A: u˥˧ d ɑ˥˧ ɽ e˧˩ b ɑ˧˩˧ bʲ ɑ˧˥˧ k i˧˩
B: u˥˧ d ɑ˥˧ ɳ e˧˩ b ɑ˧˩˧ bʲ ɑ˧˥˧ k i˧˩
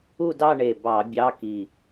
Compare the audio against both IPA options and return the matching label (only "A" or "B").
B